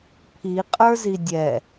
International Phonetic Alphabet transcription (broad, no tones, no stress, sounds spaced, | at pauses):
pʰ i qʼ ə˞ z i dʲ ɛ